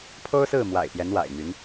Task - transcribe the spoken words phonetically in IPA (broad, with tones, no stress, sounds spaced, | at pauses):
pʰ o˥ ʊ̯ s ɹ̩˥˩ m w a̰˨˩ ɪ̯ p j ɛ˧˥ n w a̰˨˩ ɪ̯ m y˧˥ n